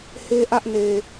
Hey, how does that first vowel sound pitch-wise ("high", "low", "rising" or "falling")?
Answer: high